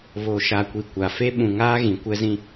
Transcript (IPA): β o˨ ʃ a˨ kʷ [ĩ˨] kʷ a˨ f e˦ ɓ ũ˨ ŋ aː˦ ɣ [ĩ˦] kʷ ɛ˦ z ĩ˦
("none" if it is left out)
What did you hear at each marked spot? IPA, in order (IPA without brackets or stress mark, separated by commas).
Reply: i˨, ĩ˨